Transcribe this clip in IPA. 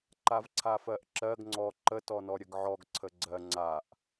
ǃ a v ǀʰ a f ɜ ʔ ǁ ɜ ɡ ŋ͡ǀ ɔ ǃ ə t ɔ n ɔ ɾʲ ə ɡ ʕ ɔ ɡ ǀʰ ə ɡ͡ǀ ɜ ŋ͡ǀ a ʔ

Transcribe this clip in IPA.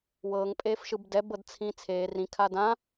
w ɤː ŋ pʼ eː f ʃ ɯ b d ɛ b ɤ d t͡sʰ ĩ t͡sʰ eː r ĩ kʰ a d ã

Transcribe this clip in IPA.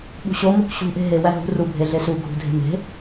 ɓ ṳ ɕ o m o k ɕ ṳ ʔ e̤ ɦ e w æ ɦ ṳ r u bʱ e ɮ e s u ɡʱ ṳ dʱ e̤ m e̤

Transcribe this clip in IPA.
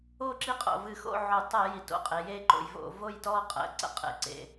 o˥˨ ǁ i˦ qʼ o̰˨˩ v ɨ˧˩˧ x o̰˥˨ ʕ o˧˩˧ tˤ ɜ˧˩˧ j i˩˧ t o̰˨˩ qʼ e˩˧ j e˥˨ ǃ o̰˧˩˧ j v o̰˧˩˧ v o˥˨ j t ɔ˥˨ qʼ ə̰˩˧ ǀ ə̰˥˨ qʼ ḛ˩˥ ǀ ḛ˨˩

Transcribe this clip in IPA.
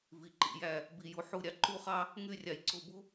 v i˩ ǃ ḭ˧˩ j æ˧˩ | b i˩ j u˩ ħ u˧˩ ɾʲ ɑ˩ ǃ u˦ χ ɑ˦ | ŋ y˧˩ rʲ ɑ˩ j ǀ o˧˩ b u˦

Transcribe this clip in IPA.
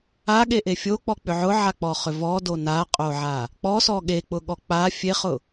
a ɠ e ʔ e fʲ o k͡p ɔ k͡p ʏ ʕ ʊ ʕ a k͡p ɔ χ ʏ v ɔ d o n a qʼ o ʕ a | k͡p ɔ s ɔ ɠ e k͡p ʊ ɠ ɔ k͡p a fʲ e χ ʊ

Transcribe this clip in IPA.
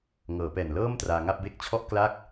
ŋ ɤː˩˦ p ɛː˨˩ n l ɤː˥˩ m t r aː˧ ŋ a˥˩ p̚ b e˦˥ k̚ t͡ɕʰ ɔ˥˩ ʔ k l a˥˩ k̚

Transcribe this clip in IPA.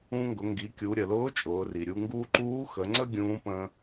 ũ˧ ŋ ɡ ʊ˩˧ ŋ ɡ i˩˧ kʲ u˩˧ ɾʲ ə˩ l ʊː˧˥ t͡ʃʼ ʊː˩˧ r i˩ ɾʲ u˧ ŋ ɡ uː˥ ǃ uː˧˥ x ə˩˧ ŋ͡ǀ ə˥ ɡʲ ũː˧˥ p ə̃ː˧

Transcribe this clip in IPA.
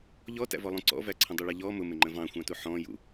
ʎ ɔ t æ̰ v ɔ lˠ ũ ǀ ɔ̰ v æ ǀʰ ə̃ dˤ u ɭ ɑ ʎ ɔ m ʊ m ɪ ŋ͡ǃ ə̃ v ɑ̃ xʷ ɑ̃ t u ħ ɔ̃ j ṵ

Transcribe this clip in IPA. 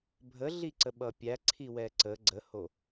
bʱ ə ɮ i ǀ ə ɓ ʌ pʲ æ ǀʰ i w ɛ ǀ ə ɡ͡ǀ ə h o

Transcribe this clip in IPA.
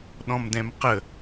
ɗ ɔ̃ m d ɛ̃ m q ə

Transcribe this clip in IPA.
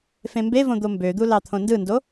f ẽ m b e v õ d̪ o m b ø d̪ u l ɑ t̪ʰ õ n d ɯ n d o

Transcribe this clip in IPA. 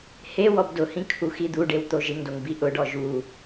h e w ɔ b d ʊ h ĩ kʰ u x i d̪ u ɖ e w t̪ o ʒ ɪ ŋ d o ŋ b i ʔ ʊ ɖ ɔ ʒ u

